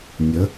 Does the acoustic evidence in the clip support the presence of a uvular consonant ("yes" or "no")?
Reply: no